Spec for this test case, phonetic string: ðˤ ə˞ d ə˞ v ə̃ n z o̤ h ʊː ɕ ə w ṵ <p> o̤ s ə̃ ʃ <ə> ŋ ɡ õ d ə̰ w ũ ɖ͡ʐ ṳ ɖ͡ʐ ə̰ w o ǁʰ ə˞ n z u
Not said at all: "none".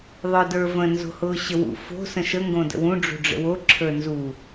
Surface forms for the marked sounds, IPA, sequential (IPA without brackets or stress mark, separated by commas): f, ə